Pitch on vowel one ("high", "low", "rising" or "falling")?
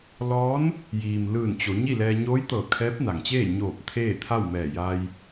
rising